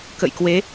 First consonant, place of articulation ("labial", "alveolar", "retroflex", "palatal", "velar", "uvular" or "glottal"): velar